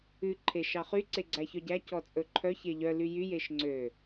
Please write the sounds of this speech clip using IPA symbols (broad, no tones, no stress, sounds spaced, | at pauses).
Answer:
ʉ ǃʰ e ʃ ɑ χ y ǀ e ɡ͡ǀ æ ç œ ɟ æ c ɔ t͡sʼ ɵ ǃʰ œ ç e ʎ œ l y j y j e ʃ ŋ͡ǀ ø